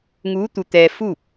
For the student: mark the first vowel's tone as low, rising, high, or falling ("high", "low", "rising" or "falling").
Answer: rising